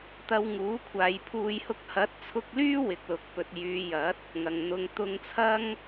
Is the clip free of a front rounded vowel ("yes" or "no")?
no